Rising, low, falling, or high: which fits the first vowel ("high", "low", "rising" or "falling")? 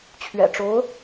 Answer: low